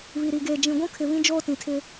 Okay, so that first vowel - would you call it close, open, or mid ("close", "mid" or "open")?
close